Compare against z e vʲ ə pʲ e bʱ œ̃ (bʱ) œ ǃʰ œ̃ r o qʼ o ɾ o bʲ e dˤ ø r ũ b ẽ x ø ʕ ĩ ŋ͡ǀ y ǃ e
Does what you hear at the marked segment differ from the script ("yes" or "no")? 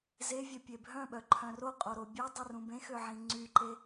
yes